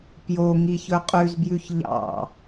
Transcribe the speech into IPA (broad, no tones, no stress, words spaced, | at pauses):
pjo ŋiçɵqʼʉzbjʉç ʎɑ̰